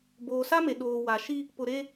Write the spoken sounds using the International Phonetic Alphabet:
b oː˨ s a˦ m e˨ ɗ oː˨ w a˨ ʃ i˦ | p ʊ˨ ɾ e˦

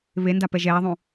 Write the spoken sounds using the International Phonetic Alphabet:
β e n d a p ɛ ʒ ɛː ðˤ ũ

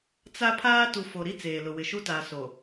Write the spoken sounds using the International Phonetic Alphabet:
t͡s a˦ pʰ aː˦ t u˨ f o˨ ɾ i˦ t͡s eː˨ l ʊ˨ w ɪ˨ ʃ u˦ t a˨ s o˨

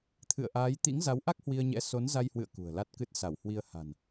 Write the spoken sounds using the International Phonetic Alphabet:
t̪ʰ ɨ̰˧˨ ə̯ ʔ aː˨˦ j t̪ ḭ˧˥ ŋ z a˨˦ w ʔ a˦˥ k̚ h w i˧ ə̯ ɲ ɛ̰˧˥ s o˨˦ n z a˧ j h w ɨ̰˧˨ ə̯ k ṳ˨˩ ə̯ l a˦˥ t̚ k ɨ˦˥ t̚ s a˧˩ w h w i˧ ə̯ h a̤˨˩ n

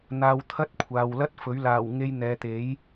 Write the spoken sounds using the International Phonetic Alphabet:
n̪ aː˧ w t̪ʰ ɐ˥ t̚ kʷʰ aː˨ w l ɐ˥ t̚ f ɵ˨˥ ɥ l aː˨˩ w ŋ e˧ j n̪ ɛː˨ t̪ e˨˥ j

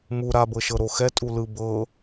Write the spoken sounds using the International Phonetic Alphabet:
m u ɾ a b ɤ ʃ ɤ ɾ o x ɛ tʼ u l ɯ b ɤ

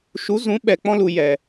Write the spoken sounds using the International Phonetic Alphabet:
ʃ u˨˦ z ũ˨˦ ɓ ɛ˨ k͡p ɔ̃˧ l u˨ j ɛ˨

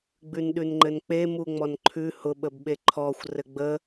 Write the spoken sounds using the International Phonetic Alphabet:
ɡ͡b ʉ n ɗ ʉ n ŋ͡ǃ ɘ n k͡p e m u ŋ͡m ɔ n ǃʰ ʉ h ʊ ɓ ə b ɓ e ǃʰ ɔ xʷ r ɘ ɡ͡b ə

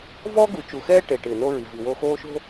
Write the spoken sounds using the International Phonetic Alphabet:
v ɔː˦ ɡ u˨ t͡ʃ u˨ x ɛː˦ ʈ e˨ ʈ ɪː˨ n o˦ ɹ i˨ v i˨ w oː˦ x oː˦ ʃ o̤˦

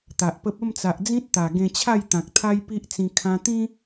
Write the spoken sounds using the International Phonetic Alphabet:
t̪ a˨ ʔ p ə˦ p̚ ə˥˧ m t͡s a˨ ʔ d͡z ĩ˦ t̚ t̪ a˨˩ ɡ ẽ˧ t͡ɕʰ a˥˧ j t̪ ã˨ k̚ t̪ʰ a˦ j p i˦ ʔ t͡s ĩ˧ kʰ ã˧ t̪ ĩ˦

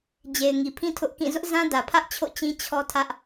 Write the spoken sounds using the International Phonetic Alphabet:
d͡ʑ e˨ ɪ̯ ŋ i˨ pʰ ĩ˦ tʰ ʊ˦ ʔ k ĩ˦˨ z ʊ˦ ʔ z ã˦ d ä˨ pʰ ä˦ ʔ t͡ɕʰ o̰˦˨ t͡ɕ ĩ˦ t͡ɕʰ ɔ˦ tʰ ä˦ ʔ

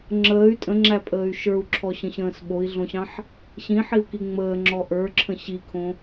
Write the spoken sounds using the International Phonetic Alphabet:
ŋ͡ǁ əː y̯ tʼ ə̃ ŋ͡ǁ æ pʼ əː y̯ ʃ ə˞ u̯ ǁʰ ɔ ɕ ə̃ ɕ ə̃ː s ɓ o i̯ ɮ õ ɕ ɑ̃ ħ | ɕ ĩ ħ i u̯ k i ŋ͡m əː ŋ͡ǁ ɔ ʔ ə˞ ǁʰ ə̃ ɕ i kʰ õ

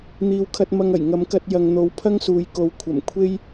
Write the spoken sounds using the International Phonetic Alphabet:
n̪ iː˨ w kʰ ɐ˧ t̚ m ɐ˧ ŋ ɐ˨˩ j ŋ ɐ˨˧ m k ɐ˧ t̚ j ɐ˨ ŋ n̪ o˨˥ w pʰ ɐ˥ ŋ s uː˨˧ j k o˨˧ w kʷʰ ɐ˨˩ m kʷʰ e˥ j

